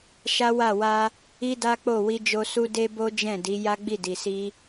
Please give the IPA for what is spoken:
ʃa˦wa˦˨ wa˧ | i˦da˦k͡po˦˨ wi˧d͡ʒo˧su˦ de˦bo˦ d͡ʒɛ̃˦˨di˨˦ ja˦ɡ͡bi˦˨di˨si˧

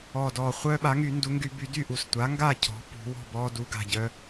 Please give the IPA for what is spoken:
ɔː˨˩dɔː˨˩ χʷœː˦ɓa˩˥ŋy˨˩˦ ndu˩˥ŋɡy˨˩˦ by˨˩˦ dy˥˨ʔu˨˩s tʷa˩˥ŋɡa˥˨ cʰɔ̤˩˥ pṳ˨˩˦wɔ̤˥˨ bɔː˦du˩˥ɡa̤˨˩ ɟœ˦

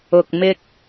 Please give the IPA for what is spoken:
ʊ˨k̚mɪ˧k̚

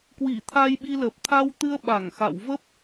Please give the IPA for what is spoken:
kwi˧˩t̪ʰa˧jɓi˧lə˨˩p̚ t̪ʰa˧wt̪ɨ˧ə̯ ɓa˧˩ŋxa̰˧˨w və˦˥p̚

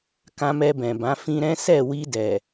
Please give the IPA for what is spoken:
kã˧mɛ˧bɛ̃˨bã˨˦ fĩ˧ɾɛ̃˦ sɛ˦˨wi˧dɛ˨

